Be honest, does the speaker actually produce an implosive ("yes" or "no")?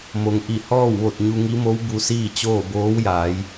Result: no